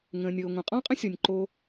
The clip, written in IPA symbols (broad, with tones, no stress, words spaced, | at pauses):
ŋə̃ː˩nʲɤː˩ ŋʷə̃ː˩qʼɔ̃˥ qʼə̃˥sʲɔ˩nʲ ǃoː˧